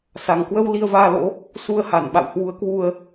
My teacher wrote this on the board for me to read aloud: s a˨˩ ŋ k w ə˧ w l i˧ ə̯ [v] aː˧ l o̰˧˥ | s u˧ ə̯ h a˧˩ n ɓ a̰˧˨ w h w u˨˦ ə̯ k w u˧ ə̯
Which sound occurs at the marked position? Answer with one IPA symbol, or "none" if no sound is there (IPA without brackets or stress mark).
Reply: v